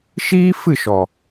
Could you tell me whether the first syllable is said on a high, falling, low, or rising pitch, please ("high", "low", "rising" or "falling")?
high